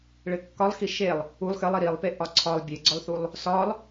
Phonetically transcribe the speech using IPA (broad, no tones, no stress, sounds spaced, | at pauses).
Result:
ɭ ɘ kː ɒ lˠ x i ʃ e lˠ | u lˠ x ɘ lˠ i ɾ i lˠ p e ʔ ɒ ǀʰ ɒ lˠ bʲ e ɡ͡ǀ ɒ lˠ θ u lˠ | s ɒ lˠ